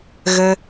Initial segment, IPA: ɣ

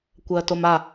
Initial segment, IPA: kʷ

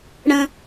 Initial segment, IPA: ɽ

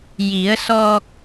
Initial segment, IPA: j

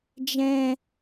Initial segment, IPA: d͡ʒ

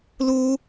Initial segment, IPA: l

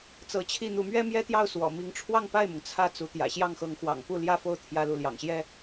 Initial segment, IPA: t͡s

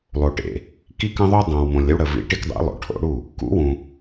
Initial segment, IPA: lˠ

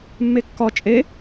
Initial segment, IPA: mː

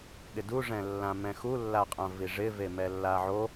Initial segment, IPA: ɠ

